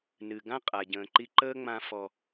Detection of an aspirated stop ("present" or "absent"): absent